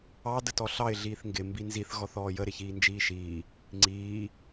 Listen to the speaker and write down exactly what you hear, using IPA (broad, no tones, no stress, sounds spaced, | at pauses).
ɑ d ə t ɔ ɬ ɑ ɪ̯ ɮ iː θ ŋ ɡ ɪ m b i n z i θ ɣ ɔ θ ɔː j ə ɾ ɪ ç iː n d͡ʒ iː ʃ iː | ŋ͡ǀ iː